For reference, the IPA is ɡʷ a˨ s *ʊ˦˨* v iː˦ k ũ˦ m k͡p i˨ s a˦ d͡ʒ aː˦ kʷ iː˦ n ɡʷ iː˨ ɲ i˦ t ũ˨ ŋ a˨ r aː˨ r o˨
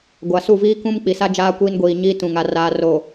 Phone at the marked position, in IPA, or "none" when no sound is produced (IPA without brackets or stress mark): u˦˨